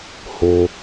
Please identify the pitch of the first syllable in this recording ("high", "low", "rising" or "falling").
low